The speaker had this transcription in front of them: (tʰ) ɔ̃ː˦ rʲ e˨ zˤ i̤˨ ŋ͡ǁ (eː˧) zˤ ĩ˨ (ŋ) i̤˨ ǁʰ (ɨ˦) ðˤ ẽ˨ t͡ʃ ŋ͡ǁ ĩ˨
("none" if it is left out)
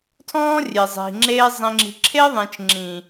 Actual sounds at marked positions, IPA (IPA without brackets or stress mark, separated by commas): tʰ, eː˧, ŋ͡ǁ, e˦